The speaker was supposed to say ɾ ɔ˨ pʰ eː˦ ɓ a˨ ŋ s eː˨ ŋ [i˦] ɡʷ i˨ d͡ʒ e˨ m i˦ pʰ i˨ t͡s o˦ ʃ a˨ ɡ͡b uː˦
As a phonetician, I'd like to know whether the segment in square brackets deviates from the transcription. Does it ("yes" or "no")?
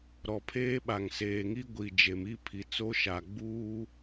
no